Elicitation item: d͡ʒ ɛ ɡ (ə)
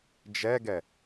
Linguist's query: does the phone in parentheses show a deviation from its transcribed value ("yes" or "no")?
yes